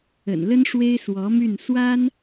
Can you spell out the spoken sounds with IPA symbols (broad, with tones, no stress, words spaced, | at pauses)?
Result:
ə̰˨˩nlə˥n ʂwe˥ɪ̯swɔ˧˥my˥˩n swa˥n